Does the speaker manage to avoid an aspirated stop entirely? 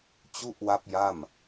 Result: yes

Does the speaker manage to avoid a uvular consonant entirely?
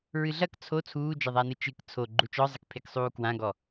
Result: yes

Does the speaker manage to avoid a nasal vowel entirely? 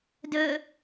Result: yes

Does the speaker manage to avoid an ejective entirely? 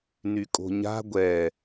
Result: no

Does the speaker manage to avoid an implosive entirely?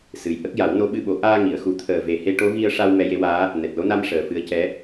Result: no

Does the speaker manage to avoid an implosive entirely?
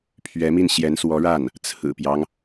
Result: yes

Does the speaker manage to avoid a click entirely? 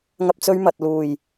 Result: yes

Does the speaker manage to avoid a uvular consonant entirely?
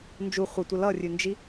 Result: no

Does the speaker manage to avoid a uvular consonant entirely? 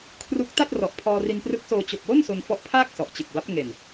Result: yes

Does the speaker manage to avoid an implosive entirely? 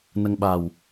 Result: no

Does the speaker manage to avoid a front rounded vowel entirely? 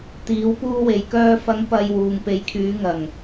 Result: no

